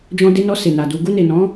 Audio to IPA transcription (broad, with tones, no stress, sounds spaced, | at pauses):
d͡ʒ ɔ̃˧ d e˧ n ɔ˧ s e˨ n a˨ d u˧ ɡ u˧ n e˨ n ɔ̃˨˦